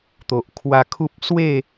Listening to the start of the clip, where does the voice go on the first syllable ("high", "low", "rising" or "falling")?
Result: low